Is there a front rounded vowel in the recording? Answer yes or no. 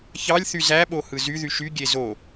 yes